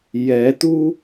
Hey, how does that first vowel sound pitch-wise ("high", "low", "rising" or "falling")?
rising